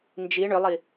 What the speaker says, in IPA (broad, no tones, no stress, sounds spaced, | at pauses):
n d͡ʒ i ɳ ʏ lˠ i